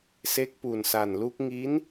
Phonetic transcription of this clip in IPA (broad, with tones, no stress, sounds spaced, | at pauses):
s e˦˥ k̚ p u˨˩ n s a˨˩ n l u˦˥ k̚ ŋ i˦˥ n